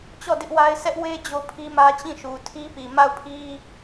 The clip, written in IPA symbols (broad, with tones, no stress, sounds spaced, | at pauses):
t͡ɕ ɔ˦˨ d ɪ˦ ʔ w a˦ ɪ̯ s ɛ˦ ʔ w e˦ d͡ʑ o˦ pʰ i˦ m ä˦ t͡ɕ ĩ˦˨ ʃ u˨ tʰ i˦ p i˨ m a˦˨ ʊ̯ pʰ i˦